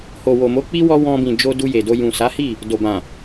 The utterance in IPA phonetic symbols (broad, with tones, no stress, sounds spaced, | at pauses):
h o˨ w o˨ m o˨˦ k͡p i˦ w ɔ˧ w ɔ̃˧ b ĩ˨ d͡ʒ o˧ d u˧ j e˨ d o˧ j ũ˨ s a˨˦ h i˦˨ | d o˨ b ã˨